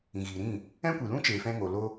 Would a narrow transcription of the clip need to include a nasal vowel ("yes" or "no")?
yes